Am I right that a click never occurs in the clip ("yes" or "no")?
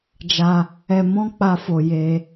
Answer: yes